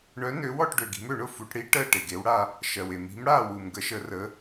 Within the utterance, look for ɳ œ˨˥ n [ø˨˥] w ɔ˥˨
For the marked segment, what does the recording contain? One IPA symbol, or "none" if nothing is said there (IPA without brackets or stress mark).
ø˨˥